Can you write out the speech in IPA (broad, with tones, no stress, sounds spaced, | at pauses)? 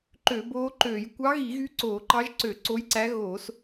ǃ ø˧˩˧ b oː˧˥ ǃ øː˧˩˧ j kʷ ɑ˧˥ ɣ i˧˩˧ ɣ y˧˥ ǀ oː˧˩˧ ǃ ɑ˧˥ ʒ ǀ ø˧˩˧ ǀ o˧˥ j ǀ æ˧˥ ɣ oː˧˩˧ s